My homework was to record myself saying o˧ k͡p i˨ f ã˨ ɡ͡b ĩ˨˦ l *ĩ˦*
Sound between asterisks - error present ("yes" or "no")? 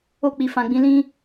no